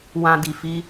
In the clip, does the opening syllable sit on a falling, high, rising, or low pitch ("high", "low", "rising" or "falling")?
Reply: low